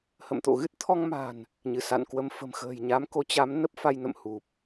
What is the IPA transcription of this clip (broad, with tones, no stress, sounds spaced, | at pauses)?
h ə̰˧˨ m t̪ o̰˧˨ ɣ ɨ˦˥ t̚ t̪ʰ ɔ˧ ŋ m a̤˨˩ n | ɲ ɨ˧˩ s a̰˧˨ n k w ə˧ m f ə̤˨˩ m x ə̤ː˨˩ j ɲ a˨˦ m k o˨˦ t͡ɕ a˨˦ m n ə˦˥ p̚ f a˧ j n ə̰˧˨ m h u˨˩ p̚